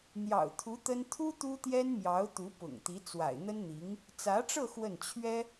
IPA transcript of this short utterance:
n̪jɑ̰˨˩ʊ̯t̪ʰu˧˥ t̪ə˥n t̪ʰu˥ t̪u˥t̪jɛ˥nmjɑ˧˥ʊ̯ t̪u˧˥pʊ̰˨˩ŋt̪i˧˥ t͡swa̰˨˩ɪ̯n̪ə˥nn̪i˧˥ŋ | t͡sä˧˥ʈ͡ʂɤ˥˧ xwə˥˩nt͡ɕʰɥɛ˥

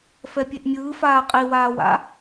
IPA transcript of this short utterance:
fɛpʲeʔmʲɯːfaː qʼiwaːwa̰

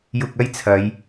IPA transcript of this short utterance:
jʊ˧k̚ɐ˥jt͡sʰɐ˨˧j

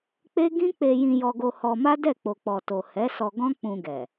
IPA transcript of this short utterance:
k͡pe˦ ɡĩ˦k͡pe˧ jĩ˧jɔ˧ɡo˧ hɔ˧ma˦ dɛ˦˨k͡po˨k͡pɔ˨to˨ hɛ˨˦sɔ˧ ɡɔ̃˦k͡pũ˧ɡɛ˨

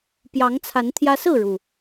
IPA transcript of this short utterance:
pjɑ˨˦ŋt͡sʰa˨˦n t̪ʰjä˦ sɹ̩˥˨ɻu˩

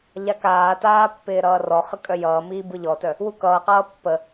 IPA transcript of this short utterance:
ʎakaːtaː pːɪːɾʌːrɔχə kʼœjʌːmiː bɯʎɔtœ | wukʌːqʌː pːə

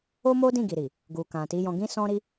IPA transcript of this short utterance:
o˦mo˦ dĩ˦˨ɡi˨ɾi˨ | ɡu˨kã˨ti˨˦ jɔ̃˧ɡĩ˦sɔ̃˦ɾi˦

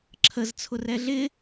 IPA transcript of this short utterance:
ǁʰəz t͡sʰʊrɛɮɪ

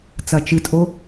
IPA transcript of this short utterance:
t͡sɐt͡ʃɨtʼo

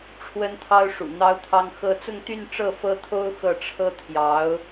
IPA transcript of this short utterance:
ʈ͡ʂʰwə˥nt̪ʰɑ˥ʊ̯ ʂṵ˨˩n̪ɑ˥ʊ̯t̪ʰɑ˥ŋxɤ˥ t͡sʊ˥˧ŋt̪y˥˧n ʈ͡ʂɤ˥˩fɤ˥t̪ʰo˥ʊ̯ xɤ˥˩ ʈ͡ʂʰɤ˥t̪ʰjɑ˧˥ʊ̯

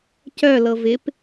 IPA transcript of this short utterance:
cœ lɤvɪp

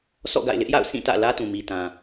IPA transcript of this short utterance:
sʰɔ̰˦˨ɡa̰˦˨ɪ̯lɪ˦ʔja̰˦˨ʊ̯ sĩ˦˨tä̰˦˨ lä˦tũ˨mi˨tã˨

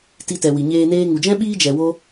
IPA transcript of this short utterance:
ti˧tɛ˨wi˨ɲeː˧ neː˧ŋu˨d͡ʒɛ̃˦ɓiː˦ d͡ʒɛ˧ wo˦

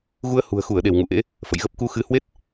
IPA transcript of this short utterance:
ɣu˧ə̯hṳ˨˩ə̯xu˧˩ə̯ɗe˧˩w ŋṵ˧˨ʔḛ˧˥ | fə̰˧˨jɣə˦˥p̚ ku˧xɨ˨˦hwe˦˥t̚

